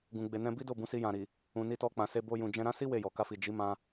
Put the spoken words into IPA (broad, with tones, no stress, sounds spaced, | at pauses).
ɡ ũ˧ ɡ͡b e˧ n ɛ̃˦ b i˦ d o˦˨ b ũ˨˦ s i˧ j ã˨ ɾ i˨ | ũ˨ n i˧ t ɔ˧ k͡p ã˨ s e˧ b o˧ j ũ˨ d͡ʒ ɛ̃˧ ɾ ã˦ s i˦ w e˦˨ j ɔ˨ k a˧ f i˨ d͡ʒ i˨˦ m ã˧